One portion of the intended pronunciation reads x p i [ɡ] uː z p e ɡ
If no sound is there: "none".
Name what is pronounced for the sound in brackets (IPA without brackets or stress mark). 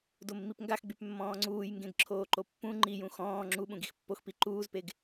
ǃ